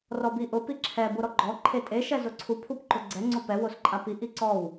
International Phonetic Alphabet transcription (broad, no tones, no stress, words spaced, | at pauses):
rɔbiʔʊ piǁʰɛ boɾɔɡ͡ǃɔ ǃʰetʼe ʃɛzoǀʰu pʰupǃʊɡ͡ǀɛ ŋ͡ǀopɛ wosǃʼapiʔ iǀɔw